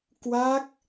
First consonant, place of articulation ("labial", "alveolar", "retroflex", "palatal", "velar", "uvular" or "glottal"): velar